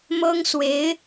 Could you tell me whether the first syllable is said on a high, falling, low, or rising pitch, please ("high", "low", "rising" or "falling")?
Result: high